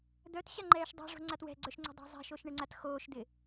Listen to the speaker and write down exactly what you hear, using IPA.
d̪ œ t ɕ a ŋ͡ǃ ɛː ʃ dˤ a̤ ʐ o̤ ŋ͡ǀ a t w ɛ̤ ɡ͡ǀ œ ʃ ŋ͡ǀ e̤ dˤ a̤ zˤ ɛ̤ ʃ o ʃ ɳ ɪ ŋ͡ǀ a t x oː ʃ d̪ ɪ

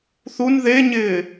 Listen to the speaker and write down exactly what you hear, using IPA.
θ u n ð e ɲ ɪː

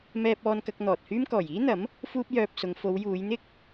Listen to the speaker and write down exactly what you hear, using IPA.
m ɛː˧ p̚ ɔː˧ n k ɐ˧ k̚ n̪ ɔː˨ t̚ h yː˥ m k ɔː˨˩ j iː˥ n̪ ɐ˨˥ m | f uː˥ p̚ j œː˧ p̚ s ʊ˨˧ ŋ f o˨˧ w j uː˨˧ j n̪ ɪ˥ k̚

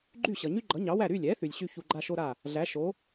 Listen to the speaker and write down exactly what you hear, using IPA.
ɡ͡ǃ y˥˩ ɕ ʌ˩ ɲ y˥ ɡ͡ǃ ʌ˩˥ ɲ ɑ˩˥ w æ˥˩ ɾ y˥˩ lʲ ɛ˩˥ θ y˩ lʲ ɕ y˥ ç u˧ ɡ͡ǃ a˥ ʃ o˥ ɾ a˥˩ | ɮ æ˩˥ ʃ o˩˥

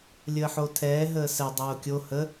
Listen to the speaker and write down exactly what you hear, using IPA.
lʲ əː ħ o tʰ ɛː ɦ əː s ɛ dˤ oː kʲ o h ə

